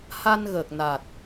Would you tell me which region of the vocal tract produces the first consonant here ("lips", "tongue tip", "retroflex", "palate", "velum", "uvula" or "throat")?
throat